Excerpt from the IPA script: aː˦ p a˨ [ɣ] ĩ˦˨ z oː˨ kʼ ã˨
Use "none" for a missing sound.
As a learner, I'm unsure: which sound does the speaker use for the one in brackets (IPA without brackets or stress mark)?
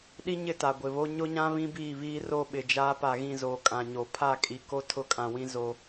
ɣ